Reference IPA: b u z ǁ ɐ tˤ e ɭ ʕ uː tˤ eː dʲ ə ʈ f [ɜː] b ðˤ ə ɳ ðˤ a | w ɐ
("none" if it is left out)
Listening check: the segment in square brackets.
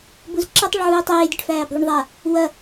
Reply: æː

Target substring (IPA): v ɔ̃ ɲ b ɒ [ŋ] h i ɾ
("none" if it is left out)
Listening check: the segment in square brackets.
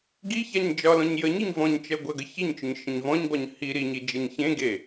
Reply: ɲ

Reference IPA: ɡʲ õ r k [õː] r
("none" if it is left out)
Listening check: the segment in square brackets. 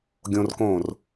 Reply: õː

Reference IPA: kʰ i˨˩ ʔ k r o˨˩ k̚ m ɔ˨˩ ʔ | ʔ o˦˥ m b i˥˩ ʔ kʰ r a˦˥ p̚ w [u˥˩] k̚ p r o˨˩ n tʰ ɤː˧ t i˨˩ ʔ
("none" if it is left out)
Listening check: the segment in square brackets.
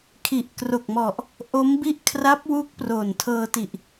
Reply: u˦˥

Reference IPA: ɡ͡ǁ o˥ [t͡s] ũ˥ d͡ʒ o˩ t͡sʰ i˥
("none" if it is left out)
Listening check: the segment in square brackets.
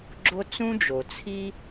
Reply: t͡s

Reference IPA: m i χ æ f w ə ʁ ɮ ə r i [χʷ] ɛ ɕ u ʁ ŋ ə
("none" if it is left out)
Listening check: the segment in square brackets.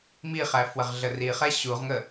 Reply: χ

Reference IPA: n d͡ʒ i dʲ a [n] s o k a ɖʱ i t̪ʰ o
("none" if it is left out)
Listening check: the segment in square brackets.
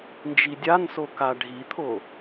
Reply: n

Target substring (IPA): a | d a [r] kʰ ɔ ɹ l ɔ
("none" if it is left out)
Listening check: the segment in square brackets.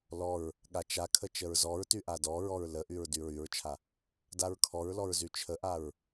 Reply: ɹ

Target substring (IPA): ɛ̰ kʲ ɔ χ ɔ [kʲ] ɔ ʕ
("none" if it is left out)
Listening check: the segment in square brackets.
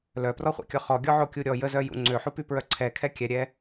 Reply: ɡʲ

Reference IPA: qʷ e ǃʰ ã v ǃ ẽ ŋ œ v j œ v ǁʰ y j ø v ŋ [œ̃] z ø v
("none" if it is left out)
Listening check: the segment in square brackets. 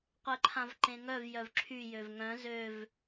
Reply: œ̃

